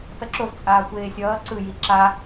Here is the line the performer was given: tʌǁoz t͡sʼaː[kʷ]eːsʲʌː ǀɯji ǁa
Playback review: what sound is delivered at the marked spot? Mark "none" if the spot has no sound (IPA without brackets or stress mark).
kʷ